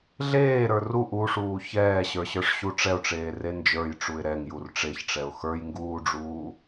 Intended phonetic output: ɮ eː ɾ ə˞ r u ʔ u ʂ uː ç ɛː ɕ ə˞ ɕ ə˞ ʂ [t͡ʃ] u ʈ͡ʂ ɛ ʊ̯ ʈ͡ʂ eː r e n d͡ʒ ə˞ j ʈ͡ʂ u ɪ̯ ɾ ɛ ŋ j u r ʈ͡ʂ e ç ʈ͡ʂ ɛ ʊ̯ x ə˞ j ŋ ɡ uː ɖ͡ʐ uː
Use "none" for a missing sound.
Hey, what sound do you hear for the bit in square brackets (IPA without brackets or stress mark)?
ɕ